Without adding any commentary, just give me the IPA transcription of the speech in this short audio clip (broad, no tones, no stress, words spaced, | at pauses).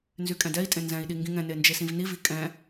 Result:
nzykʼɛ̃dɛi̯tʼẽ nzɛ̃i̯ɗi ŋɡĩŋɛ̃ne nd͡ʒesĩvnivi kʼɛ̃